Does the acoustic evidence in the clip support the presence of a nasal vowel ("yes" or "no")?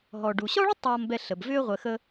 no